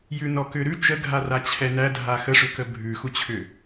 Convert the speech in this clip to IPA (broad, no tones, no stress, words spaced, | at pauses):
jʉnɔkʏɾʉ t͡ʃəɡʱara t͡ɕʰɛnædʱa xəʂʏkə bʱʉxut͡ɕʰʏ